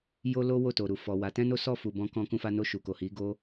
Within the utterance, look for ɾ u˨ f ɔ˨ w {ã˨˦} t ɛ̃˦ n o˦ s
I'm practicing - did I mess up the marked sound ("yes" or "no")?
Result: yes